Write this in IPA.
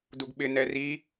d u ɡ ɓ ɪ n ɛ r i

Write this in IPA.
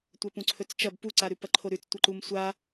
tʷ ɐ p ũ ǀʰ ɵ t͡s t͡ʃ ɐ b p u ǀ a ɾ ʉ p ɐ ǃʰ o ɾ ʉ t͡s tʷ ɐ ǃ u m sʷ a

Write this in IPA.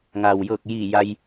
ŋ a˩ w j ɤː˧˩ k̚ j i˧˩ j a˧ j

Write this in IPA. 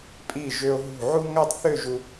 pʼ i˧˩ ʒ ø˧ o̯ ɦ ṳ˧˩ ʕ u˥ ŋ a˥˧ tˤ θ ø˥˧ ʒ u˧

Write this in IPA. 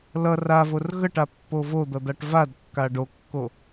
l ʌ r a v o r ɣ ə ʈ a pː o v o d̪ ʌ d̪ a ʈ v a d kː a ɖ o kː o

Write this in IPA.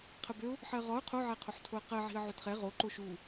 qʰ ə b ø ʊ̯ | ħ ɜ ʁ ɔ ʊ̯ qʰ o ʕ ɛ qʰ o ħ tʰ o ə̯ q ɜ ʕ i̤ ə̯ ʕ o t χ ɛ ʁ o ǃ o ʃ u

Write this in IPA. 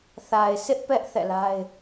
θ a˨ ɪ̯ s ɪ˦ ʔ p ɛ˦ ʔ θ ɛ̰˦˨ l a˦ ɪ̯

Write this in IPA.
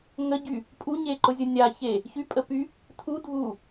ŋ ə ɟ y | pʼ u ɲ e ǃ ʊ zʲ ʊ nʲ a ç e | ç y pʼ ə p y | tʰ u dʱ u

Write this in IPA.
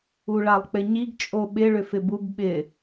u ɭ a lˠ k͡p ɪ ɲ i ɡ t͡ʃʼ o ɓ ɪ ɭ ʏ f ɪ b u b ɓ ɪ

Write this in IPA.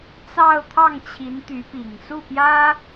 t͡s ɑ˥˧ ʊ̯ t̪ʰ ɑ˥˩ ŋ t͡ɕʰ i˧˥ n t̪ y˧˥ p i˨˩ ŋ s u˥˩ p j ä˥

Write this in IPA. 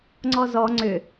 ŋ͡ǀ ɔ z ɔ ŋ͡ǀ ʏ

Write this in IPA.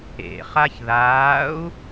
ḛ χ a ç ð aː u̯

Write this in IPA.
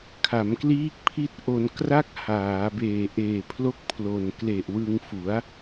kʰ a˩˦ m k l iː˦˥ k̚ pʰ i˦˥ t̚ ʔ o˧ n k r a˥˩ k̚ h aː˩˦ b eː˨˩ ʔ eː˨˩ pʰ l o˥˩ k̚ pʰ l o˨˩ n k l e˨˩ ʔ w ɯ˧ ŋ f u˩˦ a̯

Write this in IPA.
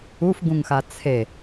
u f ɡ ũ ŋ x a t͡sʰ e

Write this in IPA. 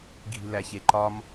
ɡʱ i̤ l æ ç e ǃ ɒ m

